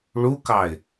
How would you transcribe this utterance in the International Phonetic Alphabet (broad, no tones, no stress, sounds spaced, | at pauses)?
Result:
ɭ u k ɑ ɪ̯